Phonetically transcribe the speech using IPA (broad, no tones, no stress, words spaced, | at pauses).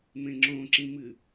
mẽŋ͡ǁõǁĩmɨ